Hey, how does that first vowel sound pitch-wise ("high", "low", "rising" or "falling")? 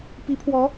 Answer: rising